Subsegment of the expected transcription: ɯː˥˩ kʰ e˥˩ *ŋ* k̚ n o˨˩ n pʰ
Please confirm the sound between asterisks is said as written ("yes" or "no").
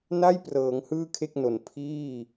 no